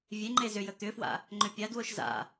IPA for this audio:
vʲ e ŋ͡ǃ e z ʏ j ə t̪ ʏ f w a̰ | ŋ͡ǃ ʏ pʲ a d w o ʃ z a̰

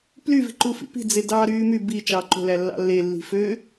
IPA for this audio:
p l y v i̤ ǃ u f ḭ p i̤ d͡z e d ɑː ɾ yː m y b i t͡ʃ ɑː ǃ o̤ l æ lː ɑ̰ lː e lː i̤ f ø

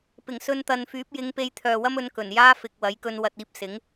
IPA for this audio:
p ɪ˨˩ ŋ s ɵ˧ n t̪ ɐ˨ n f yː˨˥ p̚ j ɪ˨˧ ŋ p e˧ j t̪ʰ œː˨ w ɐ˥ m ɵ˨˧ n k ɵ˨˩ n j aː˥ f ɪ˨ k̚ w ɐ˨˥ j k ɵ˧ n w ɐ˨ t̚ iː˧ p̚ s ɪ˨˥ ŋ

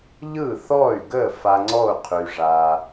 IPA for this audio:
ʎ ɯ˥˩ θ ɔ˥˩ y̯ ɡ ə˥˩ f a˧ ŋ͡ǀ ɔ˥˩ u̯ qʰ y˩ ʐ a˩

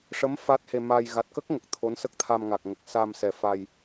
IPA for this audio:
ʂ ə˧˥ m f a˦˥ t̚ h e˧ m a˧ j ɣ a˨˩ t̚ k ə˦˥ k̚ ŋ ə˨˩ k̚ t̪ʰ o˧˥ n s ə˦˥ k̚ t̪ʰ a˧ m ŋ a˨˩ k̚ ŋ ə˨˩ k̚ s a˧ m s ɛ˨˩ f a˧ j

